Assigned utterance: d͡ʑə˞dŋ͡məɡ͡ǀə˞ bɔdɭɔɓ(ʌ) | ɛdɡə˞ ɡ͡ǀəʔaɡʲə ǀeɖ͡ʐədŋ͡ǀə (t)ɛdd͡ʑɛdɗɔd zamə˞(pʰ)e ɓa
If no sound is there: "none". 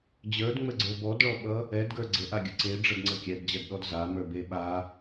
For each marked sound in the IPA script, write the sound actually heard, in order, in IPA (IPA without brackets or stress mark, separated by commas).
ʌ, kʲ, b